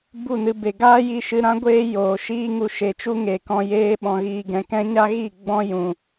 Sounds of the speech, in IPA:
b u˦˨ n ɨ˧ b e˨ ɡ aː˦ j i˧ ʃ ɨ˧ ɾ ã˦ ɡʷ eː˦ j oː˨ ʃ iː˦ ŋ u˧ ʃ e˨ t͡ʃ u˦ ŋ e˨ k ɔ̃˧ j eː˧ ɓ ɔ̃˨ ɣ iː˨ ɡ ɛ̃˨ k ɛ̃˦ ɲ a˦ ɣ i˦˨ ɡ͡b ɔ̃˦ j ũ˧

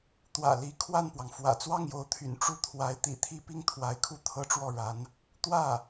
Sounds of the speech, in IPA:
t̪ w ä̰˨˩ l i˧˥ kʰ w a˥˩ n p w ɑ˩ ŋ f w ä̰˨˩ t͡s w ɑ˥˩ ŋ j o˧˥ ʊ̯ t̪ʰ y̰˨˩ n ʈ͡ʂ u˥˩ t̪ʰ w a˧˥ ɪ̯ t̪ ḭ˨˩ t̪ʰ i˥ p i˥ ŋ t̪ʰ w a˧˥ ɪ̯ kʰ u˥˩ t̪ʰ ɤ˥ ʈ͡ʂ w ɔ˥˩ ɻ a˧˥ n | t̪ w ä˥˩

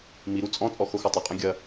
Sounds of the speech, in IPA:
m i ɾ u t͡sʼ ɔ̃ t͡sʼ ɔ x o x ɔ tˤ ɘ qʼ ɛ̃ ɡʲ ɐ

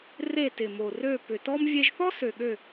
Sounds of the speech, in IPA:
r e˦˨ t ɪ˨˩ m o˨˩ r ø˦˨ p ʏ˨˩ t ɔ˥ m vʲ e˥ ʒ θ ɔ˥ s ø˨˩ ɠ ø˦˨

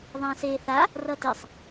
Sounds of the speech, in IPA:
ðˤ ã s eː θ a | r ʌ t e sˤ

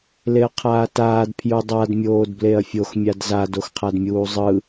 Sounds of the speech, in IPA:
l e ɐ̯ qʰ aː t aː d pʰ j u dˤ a d mʲ oː d b l e ɐ̯ fʲ o x mʲ a d z a d o x qʰ a d mʲ uː zˤ ɯ

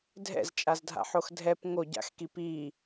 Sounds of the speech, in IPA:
dʱ ɛ̰ z t͡ʃʼ a z dʱ a̰ ħ o x dʱ ɛ p ŋ o ɟ a̰ x k i p iː

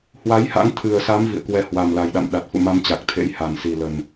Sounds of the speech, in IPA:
h w a˨˦ j h a̰˧˥ ŋ t̪ʰ ɨ˨˩ ə̯ s a˨˦ m v ḭ˧˨ ə̯ k w ɛ˧ h w a˨˩ m l a˨˩ j ɗ a̰˧˨ m ɗ a˨˩ t̚ f ṵ˧˨ m a˧ m t͡ɕ a˨˩ k̚ t̪ʰ ḛ˧˥ j h a˨˩ n s i˨˩ l ə˨˩ n

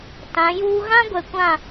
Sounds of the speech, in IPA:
t ã˨˦ j uː˦ ɣ ã˦ ɡʷ ɛ˨ kʷ ã˦˨

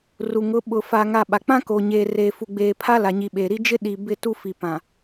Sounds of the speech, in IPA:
r u˨ ŋ ʊ˨˦ ɓ ʊ˨ f aː˨ ŋ a˨ ɓ a˨ k͡p ã˦ k o˨ ɲ eː˨ r eː˨ f u˨ ɡ͡b eː˨ pʰ a˦ l a˨ ɲ i˨ ɓ eː˨ ɾ i˦ d͡ʒ ɪ˦ ɗ i˨ b ɪ˦˨ t u˦ f i˨ p ã˨

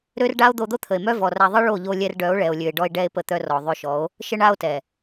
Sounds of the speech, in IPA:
ɾ ø˦ r ɖ a˦ o̯ d̪ o˧ d̪ o˦ t̪ʰ ə˨ e̯ m œ˦ v ɔ˨ r a˧ ðˤ ə˦ ɭ o˦˨ ʎ o˧ lʲ ɛ˧ r ɖ œ˨˦ o̯ ɭ ɛ˨ o̯ lʲ ø˨ e̯ ɖ ɔ˧ e̯ ɖ ɛ˧ e̯ p ə˦ t̪ œ˦ r ɔ˨ ðˤ ø˧ ʃ ɔ˨˦ o̯ | ʃ ə˦ ɳ a˦ o̯ t ɛ˨

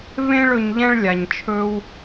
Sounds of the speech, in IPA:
v ẽ˥ ɭ ɵ˧ ɲ ʎ ɛ̃˥ ɭ lʲ a˩ ɲ t͡ʃʰ ɵ˧ w

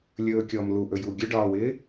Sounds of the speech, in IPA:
lʲ ɵː kʲ ɔː m l u ʔ ɵ j u ɡʲ ɵ ɖ ɒː w ɪː

